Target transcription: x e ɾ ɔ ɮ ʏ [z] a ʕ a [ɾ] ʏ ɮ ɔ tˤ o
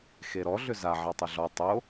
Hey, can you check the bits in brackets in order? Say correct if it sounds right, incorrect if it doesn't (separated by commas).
correct, incorrect